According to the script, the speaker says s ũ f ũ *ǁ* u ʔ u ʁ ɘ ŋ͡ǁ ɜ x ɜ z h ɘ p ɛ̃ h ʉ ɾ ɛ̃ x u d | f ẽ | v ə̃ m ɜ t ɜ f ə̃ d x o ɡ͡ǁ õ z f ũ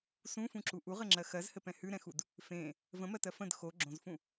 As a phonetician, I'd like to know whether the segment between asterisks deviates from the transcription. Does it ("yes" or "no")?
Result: no